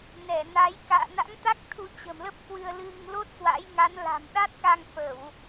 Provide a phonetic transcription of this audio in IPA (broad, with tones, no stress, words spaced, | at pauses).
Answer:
nɛ˧˩na˨˦j ka̰ː˧˨na̰˧˥ŋt̪a˦˥k̚ t̪ʰu˧t͡ɕə̤˨˩mlə˦˥p̚ kwɨ˧ə̯lɨ˧ŋ lo˦˥t̚kwa̰˧˥jŋa˨˦n la̤˨˩m ɗa˦˥t̚ka˧ŋfə˧˩˨w